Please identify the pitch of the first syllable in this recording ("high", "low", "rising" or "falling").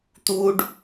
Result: high